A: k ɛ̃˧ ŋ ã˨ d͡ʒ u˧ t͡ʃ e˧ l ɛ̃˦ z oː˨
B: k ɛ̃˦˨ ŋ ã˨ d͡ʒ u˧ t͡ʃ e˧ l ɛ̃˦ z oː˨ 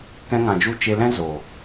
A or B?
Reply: A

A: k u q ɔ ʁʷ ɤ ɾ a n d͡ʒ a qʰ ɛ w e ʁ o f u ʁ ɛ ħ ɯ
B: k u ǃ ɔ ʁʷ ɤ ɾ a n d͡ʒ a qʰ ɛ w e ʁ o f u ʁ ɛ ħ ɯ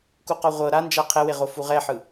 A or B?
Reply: A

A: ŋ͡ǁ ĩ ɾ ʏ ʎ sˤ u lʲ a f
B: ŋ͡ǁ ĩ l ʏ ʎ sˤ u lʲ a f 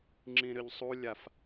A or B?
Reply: A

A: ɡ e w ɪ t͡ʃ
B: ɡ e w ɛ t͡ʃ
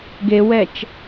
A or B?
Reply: B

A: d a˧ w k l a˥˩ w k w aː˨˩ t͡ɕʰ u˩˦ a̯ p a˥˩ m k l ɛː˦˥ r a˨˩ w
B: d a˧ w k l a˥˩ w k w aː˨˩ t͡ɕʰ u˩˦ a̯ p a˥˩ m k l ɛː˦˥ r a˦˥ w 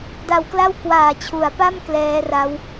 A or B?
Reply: B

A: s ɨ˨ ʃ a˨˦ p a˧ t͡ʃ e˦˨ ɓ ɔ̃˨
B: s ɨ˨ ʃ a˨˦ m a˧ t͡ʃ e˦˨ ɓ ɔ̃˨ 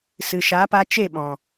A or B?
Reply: A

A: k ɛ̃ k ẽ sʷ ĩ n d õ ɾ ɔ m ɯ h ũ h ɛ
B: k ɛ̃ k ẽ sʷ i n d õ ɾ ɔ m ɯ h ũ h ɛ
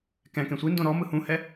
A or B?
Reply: B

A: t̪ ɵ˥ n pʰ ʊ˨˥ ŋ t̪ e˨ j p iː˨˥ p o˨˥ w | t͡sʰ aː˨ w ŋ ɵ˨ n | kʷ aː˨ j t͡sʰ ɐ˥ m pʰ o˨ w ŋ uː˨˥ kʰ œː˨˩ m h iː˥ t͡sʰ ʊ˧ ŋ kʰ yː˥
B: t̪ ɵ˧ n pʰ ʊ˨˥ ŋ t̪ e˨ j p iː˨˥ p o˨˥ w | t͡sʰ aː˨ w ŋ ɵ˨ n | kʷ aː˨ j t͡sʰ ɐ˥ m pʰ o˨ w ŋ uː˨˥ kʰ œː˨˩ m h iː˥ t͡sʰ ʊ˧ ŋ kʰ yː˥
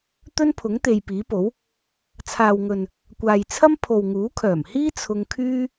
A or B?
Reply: A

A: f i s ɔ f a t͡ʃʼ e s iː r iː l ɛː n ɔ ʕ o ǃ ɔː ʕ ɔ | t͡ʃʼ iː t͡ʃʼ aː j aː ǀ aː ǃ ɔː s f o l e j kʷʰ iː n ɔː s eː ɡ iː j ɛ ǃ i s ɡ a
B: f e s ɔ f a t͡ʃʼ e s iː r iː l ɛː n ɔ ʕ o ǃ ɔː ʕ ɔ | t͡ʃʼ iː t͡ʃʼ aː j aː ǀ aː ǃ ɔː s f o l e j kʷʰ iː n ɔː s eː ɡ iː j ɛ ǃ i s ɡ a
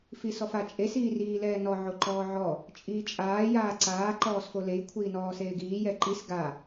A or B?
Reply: A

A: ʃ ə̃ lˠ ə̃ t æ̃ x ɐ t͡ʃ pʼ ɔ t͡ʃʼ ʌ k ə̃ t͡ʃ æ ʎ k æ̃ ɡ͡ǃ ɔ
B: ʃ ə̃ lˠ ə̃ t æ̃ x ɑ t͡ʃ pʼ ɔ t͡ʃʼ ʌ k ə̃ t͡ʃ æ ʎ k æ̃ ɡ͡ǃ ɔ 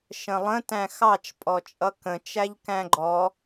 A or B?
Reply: B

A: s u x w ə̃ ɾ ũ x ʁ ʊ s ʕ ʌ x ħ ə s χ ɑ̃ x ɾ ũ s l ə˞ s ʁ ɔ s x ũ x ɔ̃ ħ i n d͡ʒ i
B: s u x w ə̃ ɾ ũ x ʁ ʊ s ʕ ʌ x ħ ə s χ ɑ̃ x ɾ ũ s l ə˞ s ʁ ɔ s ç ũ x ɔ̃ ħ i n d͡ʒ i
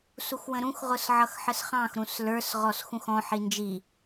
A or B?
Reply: A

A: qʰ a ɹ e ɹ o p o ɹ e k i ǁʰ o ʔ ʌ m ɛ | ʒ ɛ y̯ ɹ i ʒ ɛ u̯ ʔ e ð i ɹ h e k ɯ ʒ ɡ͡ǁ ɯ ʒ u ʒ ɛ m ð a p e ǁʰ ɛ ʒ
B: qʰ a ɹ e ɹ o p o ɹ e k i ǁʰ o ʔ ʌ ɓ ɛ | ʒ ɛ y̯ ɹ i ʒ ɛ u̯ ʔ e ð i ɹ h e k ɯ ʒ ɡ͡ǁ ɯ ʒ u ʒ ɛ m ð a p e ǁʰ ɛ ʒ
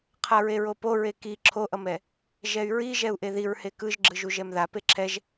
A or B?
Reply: A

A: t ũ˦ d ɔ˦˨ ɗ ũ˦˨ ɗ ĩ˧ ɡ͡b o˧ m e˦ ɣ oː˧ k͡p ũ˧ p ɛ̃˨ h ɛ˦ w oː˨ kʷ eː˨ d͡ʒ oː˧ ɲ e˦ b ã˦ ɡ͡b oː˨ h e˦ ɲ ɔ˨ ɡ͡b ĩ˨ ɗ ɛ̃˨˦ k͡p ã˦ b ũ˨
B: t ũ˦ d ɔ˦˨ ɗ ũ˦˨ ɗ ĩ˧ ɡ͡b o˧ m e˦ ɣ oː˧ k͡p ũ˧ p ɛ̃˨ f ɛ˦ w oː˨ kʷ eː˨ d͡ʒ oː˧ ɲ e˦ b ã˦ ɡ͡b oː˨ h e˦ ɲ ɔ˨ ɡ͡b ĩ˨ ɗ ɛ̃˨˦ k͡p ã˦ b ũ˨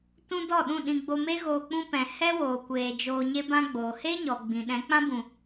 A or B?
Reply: A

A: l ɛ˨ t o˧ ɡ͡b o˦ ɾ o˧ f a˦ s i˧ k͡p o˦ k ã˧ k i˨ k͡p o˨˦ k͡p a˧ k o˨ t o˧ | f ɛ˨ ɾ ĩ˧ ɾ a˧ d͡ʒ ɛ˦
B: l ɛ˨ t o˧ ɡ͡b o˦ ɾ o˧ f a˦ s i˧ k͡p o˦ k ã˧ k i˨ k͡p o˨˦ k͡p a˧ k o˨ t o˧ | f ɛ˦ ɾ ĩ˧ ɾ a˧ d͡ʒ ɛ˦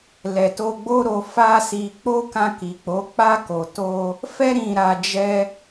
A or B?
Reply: B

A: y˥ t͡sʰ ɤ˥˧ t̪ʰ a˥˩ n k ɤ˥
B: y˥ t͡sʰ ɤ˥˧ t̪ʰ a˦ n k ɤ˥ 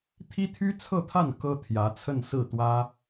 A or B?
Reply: A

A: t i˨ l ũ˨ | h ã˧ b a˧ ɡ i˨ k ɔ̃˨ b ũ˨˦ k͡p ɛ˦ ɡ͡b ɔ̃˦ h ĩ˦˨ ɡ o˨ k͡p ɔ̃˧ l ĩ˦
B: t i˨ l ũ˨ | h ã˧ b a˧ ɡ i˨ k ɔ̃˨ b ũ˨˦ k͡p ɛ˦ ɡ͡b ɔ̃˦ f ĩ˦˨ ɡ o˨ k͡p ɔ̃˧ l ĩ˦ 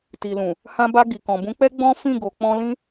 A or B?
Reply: B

